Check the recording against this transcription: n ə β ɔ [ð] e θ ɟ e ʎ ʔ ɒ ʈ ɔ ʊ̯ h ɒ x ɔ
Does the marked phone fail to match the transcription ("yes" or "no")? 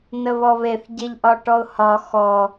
yes